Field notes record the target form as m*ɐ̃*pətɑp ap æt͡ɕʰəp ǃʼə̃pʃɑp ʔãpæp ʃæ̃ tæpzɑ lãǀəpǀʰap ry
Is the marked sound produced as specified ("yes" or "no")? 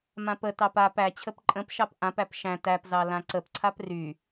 no